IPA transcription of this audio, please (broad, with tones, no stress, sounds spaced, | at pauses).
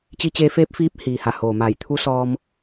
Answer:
t͡ɕ i˧ t͡ɕ eː˧ f eː˧˥ p̚ f iː˧˥ p̚ h iː˩ h a˧˩ h oː˩ m a˧˩ j t̪ʰ u˧˥ s ɔː˧ m